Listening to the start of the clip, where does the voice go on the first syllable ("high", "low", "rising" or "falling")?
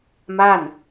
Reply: falling